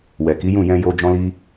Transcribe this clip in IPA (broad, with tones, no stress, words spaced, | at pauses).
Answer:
wɛ˨ki˨˦ jũ˦˨jɛ̃˧jo˧ d͡ʒɔ̃˦li˦